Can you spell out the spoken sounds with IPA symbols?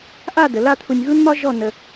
ʔ a˥˧ d ə˩˧ l a˥˧ t̪ʰ u˧ nʲ ɣ u˥ n m ɒ˥ ʒ ɔ˥˧ n ə˧

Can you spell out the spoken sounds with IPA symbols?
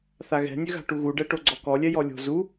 θ a ɣ ɛ̤ nʲ ø ɣ a̤ ʈ u ɣ u ɖ ɛ ʈ o ɡ͡ǀ ɔ k ɔ lʲ ɛ j ɔ lʲ o̤ z u

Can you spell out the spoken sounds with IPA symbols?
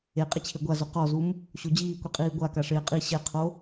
e qʼ ɪ t͡ɕʰ e ɡʷ a z o q ɔ z u m | ɕ o d͡ʑ iː kʷ i qʼ iː ɡʷ a k a ʂ ɪː qʼ i ɕ ɛ qʰ o

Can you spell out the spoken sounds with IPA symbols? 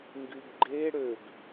ŋ ɡ y ɡ ɡ͡ǃ e ɽ ø ɡ

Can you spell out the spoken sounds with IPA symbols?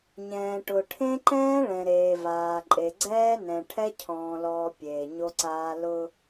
ɲ ɛ̃ː˨ ʈ ʊ˨ ʈʰ ẽ˦ ǃ ɛ̃ː˦ ɭ ɛ̃˨ ɾ eː˨ v aː˨ ǃʼ e˨ ɡ͡ǀ ɛː˦ n ɛ̃˨ ʈʰ ɛ˦ cʰ ɔ̃ː˨ l ɔː˨ pʲ eː˨ ɲ o˦ ǀ aː˦ l ʊ˦

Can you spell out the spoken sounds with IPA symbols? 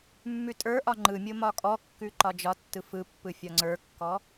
mː ʉ tʼ ə˞ ʔ ɒ ŋ͡ǃ ɯ mʲ o m ɒ kʼ ɔ kː ʉ ǃ ɒ d͡ʒ ɒ tː ɯ f ɯ pː ɯ fʲ ɒ ŋ͡ǀ ə˞ kː ɔ

